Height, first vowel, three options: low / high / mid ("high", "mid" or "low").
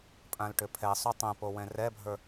low